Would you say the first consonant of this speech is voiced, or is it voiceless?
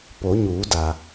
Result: voiceless